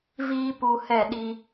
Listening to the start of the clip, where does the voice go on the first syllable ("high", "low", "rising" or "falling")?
high